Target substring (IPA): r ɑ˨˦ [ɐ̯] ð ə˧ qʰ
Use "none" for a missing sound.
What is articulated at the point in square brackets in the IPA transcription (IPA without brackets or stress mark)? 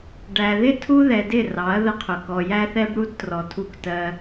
ɐ̯